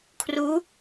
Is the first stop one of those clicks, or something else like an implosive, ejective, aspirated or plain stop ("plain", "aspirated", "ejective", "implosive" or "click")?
aspirated